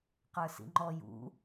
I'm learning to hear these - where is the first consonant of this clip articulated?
uvula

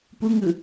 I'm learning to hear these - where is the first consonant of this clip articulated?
lips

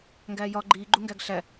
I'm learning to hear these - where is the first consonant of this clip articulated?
velum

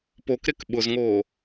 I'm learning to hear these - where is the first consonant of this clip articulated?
lips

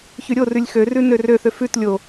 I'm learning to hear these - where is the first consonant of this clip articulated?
palate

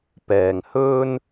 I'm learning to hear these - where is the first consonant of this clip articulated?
lips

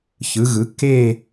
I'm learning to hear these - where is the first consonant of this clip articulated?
palate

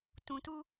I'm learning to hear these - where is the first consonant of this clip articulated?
tongue tip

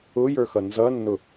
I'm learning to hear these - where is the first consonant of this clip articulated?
palate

